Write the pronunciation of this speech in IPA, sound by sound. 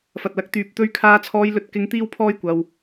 f ɐ˨ t̚ l ɐ˨˥ k̚ t̪ yː˨ p̚ t̪ ɵ˧ ɥ kʰ aː˧ t͡sʰ ɔː˧ j l ɵ˧ t̚ k ɪ˧ ŋ t̪ iː˥ w pʰ ɔː˥ j kʷ ɐ˧ w

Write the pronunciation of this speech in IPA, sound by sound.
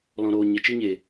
l ɔ̃˨ ɾ oː˨ ɲ ə˨ t͡ʃ i˧ ɲ e˨

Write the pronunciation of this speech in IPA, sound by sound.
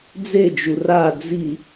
d͡z e d͡ʒ u r a d͡z i

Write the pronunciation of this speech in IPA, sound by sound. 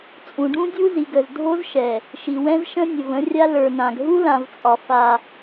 t͡sʼ ũ˨ ɖ ũ˦ dʲ u˦ z i˨ ɡ ə˨ z dʱ o˦ z ʃ ɛ˨ | ʃ i˨ w ɛ̃˦ z ʃ ə̃˦ nʲ ə˨ v ə̃˦ rʲ a˦ l ə˞˨ n ã˨ ɡ ɦ u˦ l ã˨ v t͡sʼ ɒ˨ f a˦

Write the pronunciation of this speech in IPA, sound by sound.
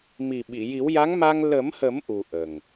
m i˨˩ ɓ i˨˩˨ j i˨˩˦ w j a˧˥ ŋ m a˧ ŋ l ə˨˩˦ m h ə˨˩˦ m ʔ u˨˩ ʔ ə˨˩ ŋ

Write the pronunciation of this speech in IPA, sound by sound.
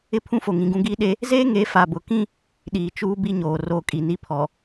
ɪ˦˨ pʰ ũ˦ f o˨ ŋ ĩ˨ ɡ ũ˦ ɡ iː˦ ɗ e˦ | z eː˦ ŋ e˨˦ f a˨ b ʊ˨ k ĩ˦ | ɗ iː˨ t͡ʃ uː˦ b i˦ ɲ oː˨ r o˦˨ kʼ i˨ n i˦ pʰ ɔ˨

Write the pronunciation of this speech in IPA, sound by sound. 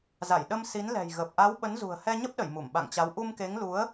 z a˧˩ j ɗ ə˧ m s i˨˦ n l ɛ̤˨˩ j ɣ ə˨˩ p̚ ʔ a˨˦ w ɓ ə˨˦ n z ṳ˨˩ ə̯ h ɛ˧ ɲ ə˦˥ p̚ ɗ ə˧˩ j m u˧˩ m ɓ a̰˧˨ ŋ t͡ɕ a˨˦ w ʔ u˧ m k e˨˦ ŋ l u˨˦ ə̯

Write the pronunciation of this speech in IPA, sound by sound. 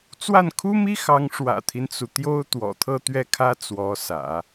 t͡s w a˥˩ n kʰ u˥ m i˥ x ɑ˧˥ ŋ ʂ w ä̰˨˩ t̪ʰ i˦ n t͡s u˩ t̪ j o˥ ʊ̯ t̪ w ɔ̰˨˩ t̪ʰ ɤ˥˧ t̪ ɥ ɛ˥˩ kʰ ä˥ t͡s w ɔ˧˥ s ä̰˨˩˦

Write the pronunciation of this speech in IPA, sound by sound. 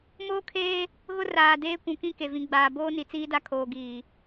m oː˦ kʰ eː˦ | ɣ ʊ˦ r aː˨ d eː˦ kʷ ũ˨ k ĩ˦ k e˨ v ĩ˨ ɡ͡b aː˨ b oː˦ n i˨ t͡s iː˦ d a˦ kʰ oː˨ ɡ iː˨

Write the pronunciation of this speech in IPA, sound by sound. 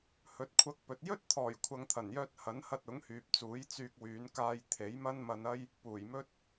h ɵ˨˥ t̚ kʷʰ ɐ˧ k̚ p ɵ˨ t̚ j ɵ˥ t̚ t̪ʰ ɔː˨˩ j kʷʰ ɐ˨ ŋ t̪ʰ ɐ˨˩ n j œː˧ t̚ h ɐ˨˥ n h ɐ˧ t̚ ʊ˨˥ ŋ h yː˨ p̚ t͡s uː˨˥ j t͡s yː˧ k̚ w yː˨˧ n k aː˧ j t̪ʰ e˨˥ j m ɐ˥ n m ɐ˧ n ɐ˥ j | p uː˨˩ j m ɵ˥ t̚

